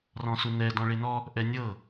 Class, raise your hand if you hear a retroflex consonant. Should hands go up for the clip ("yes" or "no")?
yes